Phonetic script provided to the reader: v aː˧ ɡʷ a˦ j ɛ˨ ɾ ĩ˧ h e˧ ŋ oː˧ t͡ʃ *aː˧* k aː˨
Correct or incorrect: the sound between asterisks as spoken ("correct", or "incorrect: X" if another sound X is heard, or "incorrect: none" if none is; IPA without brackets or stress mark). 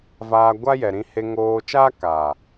incorrect: aː˦